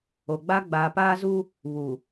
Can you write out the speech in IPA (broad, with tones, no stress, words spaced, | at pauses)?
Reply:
o˨ ɡ͡ba˦ ɡ͡baː˨paː˦zu˦ | βu˨